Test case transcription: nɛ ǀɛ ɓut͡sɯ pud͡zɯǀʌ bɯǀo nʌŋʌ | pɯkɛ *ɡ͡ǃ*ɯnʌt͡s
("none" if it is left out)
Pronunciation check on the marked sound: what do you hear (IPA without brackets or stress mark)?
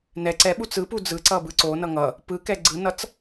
ɡ͡ǀ